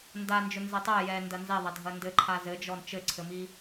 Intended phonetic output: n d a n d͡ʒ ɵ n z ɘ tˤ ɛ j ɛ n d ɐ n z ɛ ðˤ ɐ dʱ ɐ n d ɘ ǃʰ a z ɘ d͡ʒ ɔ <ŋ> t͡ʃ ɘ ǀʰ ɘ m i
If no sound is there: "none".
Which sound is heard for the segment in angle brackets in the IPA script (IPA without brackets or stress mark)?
n